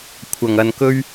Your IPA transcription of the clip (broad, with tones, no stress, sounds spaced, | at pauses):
kʷʰ ɐ˨˩ ŋ ɐ˨ n k ɵ˥ ɥ